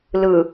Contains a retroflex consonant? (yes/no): no